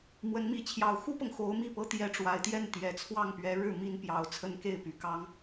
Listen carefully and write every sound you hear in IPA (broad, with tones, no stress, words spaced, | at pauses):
mwə˧˥nmi˧˥ t͡ɕʰjɑ˨˩ʊ̯xu˥pɤ˨ŋ xo˧˥ʊ̯mi˥˩ pɤ˧˥t̪jɛ˧˥ʈ͡ʂwa˨˩ɪ̯ t̪jɛ˥˩nt̪jɛ˨˩t͡sʰwɑ˥˩ŋpɥɛ˧˥ ɻɻ̩˥˩ mi˥npjɑ˧˥ʊ̯t͡sʰə˥n ke˥˩ɪ̯py˨˩kɑ˥ŋ